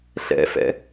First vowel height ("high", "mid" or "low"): mid